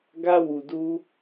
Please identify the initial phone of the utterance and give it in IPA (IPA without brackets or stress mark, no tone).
ɡ